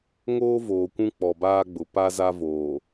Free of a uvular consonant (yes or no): yes